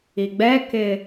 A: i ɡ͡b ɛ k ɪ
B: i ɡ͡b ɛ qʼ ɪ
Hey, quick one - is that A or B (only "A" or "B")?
A